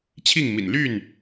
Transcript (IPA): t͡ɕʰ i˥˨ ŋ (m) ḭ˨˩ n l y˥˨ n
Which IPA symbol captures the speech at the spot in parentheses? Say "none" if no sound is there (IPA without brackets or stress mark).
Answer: m